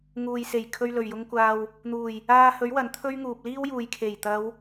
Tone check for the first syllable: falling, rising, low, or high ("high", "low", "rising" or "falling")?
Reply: low